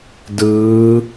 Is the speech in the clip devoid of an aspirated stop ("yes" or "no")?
yes